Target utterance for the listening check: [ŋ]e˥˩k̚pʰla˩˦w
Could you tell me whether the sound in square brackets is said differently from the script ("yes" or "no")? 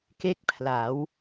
yes